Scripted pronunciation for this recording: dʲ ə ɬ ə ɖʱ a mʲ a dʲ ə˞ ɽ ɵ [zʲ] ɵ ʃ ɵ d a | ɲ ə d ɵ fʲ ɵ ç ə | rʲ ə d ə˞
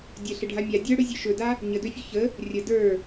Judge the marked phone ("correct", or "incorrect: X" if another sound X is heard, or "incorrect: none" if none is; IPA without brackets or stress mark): correct